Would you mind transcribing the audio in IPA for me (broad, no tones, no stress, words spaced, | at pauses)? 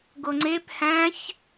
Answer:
ɡoŋ͡ǀep hæ̃ç